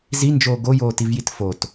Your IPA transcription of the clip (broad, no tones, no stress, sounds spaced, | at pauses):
z i n d͡ʒ oː ɡ o j oː t i v j i t f o t